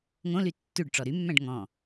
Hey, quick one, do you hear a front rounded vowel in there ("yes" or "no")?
yes